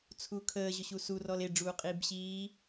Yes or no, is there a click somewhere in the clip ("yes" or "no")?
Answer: no